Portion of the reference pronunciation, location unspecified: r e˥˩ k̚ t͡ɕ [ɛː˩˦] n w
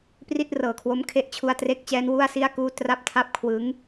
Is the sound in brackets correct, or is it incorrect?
incorrect